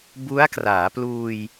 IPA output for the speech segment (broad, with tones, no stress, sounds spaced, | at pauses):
b u˦˥ a̯ k r aː˩˦ p l uː˧ j